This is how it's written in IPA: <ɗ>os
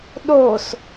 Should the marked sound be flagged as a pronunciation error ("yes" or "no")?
no